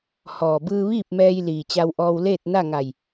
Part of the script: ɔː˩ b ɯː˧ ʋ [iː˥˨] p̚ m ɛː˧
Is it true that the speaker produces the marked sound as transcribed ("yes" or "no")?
yes